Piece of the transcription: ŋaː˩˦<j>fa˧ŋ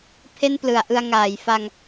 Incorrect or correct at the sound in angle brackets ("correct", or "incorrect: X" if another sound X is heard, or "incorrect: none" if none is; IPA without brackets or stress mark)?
correct